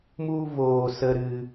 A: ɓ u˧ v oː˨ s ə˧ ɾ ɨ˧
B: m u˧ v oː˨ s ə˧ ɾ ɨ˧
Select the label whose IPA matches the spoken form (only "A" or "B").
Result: B